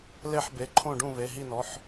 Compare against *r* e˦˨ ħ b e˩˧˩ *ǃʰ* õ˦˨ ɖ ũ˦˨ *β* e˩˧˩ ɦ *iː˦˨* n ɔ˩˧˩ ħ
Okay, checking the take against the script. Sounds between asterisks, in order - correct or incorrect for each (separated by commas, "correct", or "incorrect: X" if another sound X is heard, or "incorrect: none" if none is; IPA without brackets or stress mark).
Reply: incorrect: l, correct, correct, incorrect: i˦˨